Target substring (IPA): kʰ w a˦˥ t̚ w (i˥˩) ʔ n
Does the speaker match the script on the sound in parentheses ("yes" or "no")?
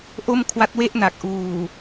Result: no